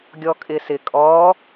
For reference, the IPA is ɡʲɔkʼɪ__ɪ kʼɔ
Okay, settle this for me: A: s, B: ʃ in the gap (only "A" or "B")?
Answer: A